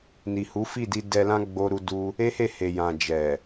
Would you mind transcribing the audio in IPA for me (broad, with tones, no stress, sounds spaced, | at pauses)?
n i˨ h u˨˦ f i˦˨ d i˧ d ɛ˧ l ã˦ ɡ͡b o˦ ɾ u˦ d u˦ | e˦ h e˦˨ h e˨ j ã˨ d͡ʒ ɛ˨